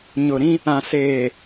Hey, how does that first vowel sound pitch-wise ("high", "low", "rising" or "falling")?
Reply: low